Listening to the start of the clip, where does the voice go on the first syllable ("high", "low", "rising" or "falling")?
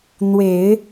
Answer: low